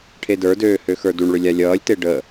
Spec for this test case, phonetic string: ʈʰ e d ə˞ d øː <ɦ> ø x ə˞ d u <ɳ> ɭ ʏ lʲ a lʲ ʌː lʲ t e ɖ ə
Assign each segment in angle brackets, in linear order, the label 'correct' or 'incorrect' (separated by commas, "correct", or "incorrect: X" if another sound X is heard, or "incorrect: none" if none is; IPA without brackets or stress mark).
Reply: incorrect: h, correct